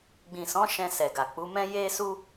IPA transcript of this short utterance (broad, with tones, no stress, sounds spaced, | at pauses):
ɡ͡b ĩ˨ s ɔ̃˨˦ ʃ ɛ̃˧ s ɛ˨ ɡ a˨ k͡p u˨˦ m ɛ̃˦ j e˦ s u˦